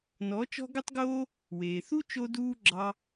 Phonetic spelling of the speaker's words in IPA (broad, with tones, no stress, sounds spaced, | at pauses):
n ɔ˨˦ t͡ʃ ɔ̤˦ ɡ ɵ˦ tˤ ɡ oː˦ | w eː˨ θ u˦ t͡ʃ o˦ d uː˦ ɡ͡ǁ ɑ˧